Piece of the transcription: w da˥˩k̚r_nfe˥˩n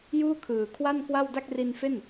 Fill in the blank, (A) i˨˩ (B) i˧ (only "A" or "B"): B